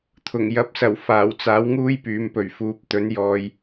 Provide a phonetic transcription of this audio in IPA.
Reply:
t̪ʰ ʊ˨˩ ŋ j ɐ˨˥ p̚ s ɐ˨˩ w f aː˨˩ w t͡s aː˨˥ w ŋ uː˥ j p yː˨˧ m p ɵ˨˩ ɥ f uː˨ p̚ t̪ ɵ˨˥ n j ɔː˧ j

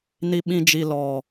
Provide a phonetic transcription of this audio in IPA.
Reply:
n i˦ ɓ ĩ˦ d͡ʒ i˦ l ɔ˦

